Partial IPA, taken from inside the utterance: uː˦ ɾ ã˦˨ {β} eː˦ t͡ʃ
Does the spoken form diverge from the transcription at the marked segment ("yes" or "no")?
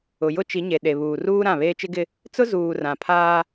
no